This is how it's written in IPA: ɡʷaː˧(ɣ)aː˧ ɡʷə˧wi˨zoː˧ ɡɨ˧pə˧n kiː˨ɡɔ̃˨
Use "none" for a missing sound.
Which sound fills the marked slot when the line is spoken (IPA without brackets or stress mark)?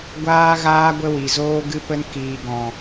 ɣ